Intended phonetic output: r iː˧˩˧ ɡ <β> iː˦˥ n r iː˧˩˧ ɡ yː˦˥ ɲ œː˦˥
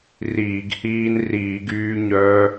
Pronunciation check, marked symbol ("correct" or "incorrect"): incorrect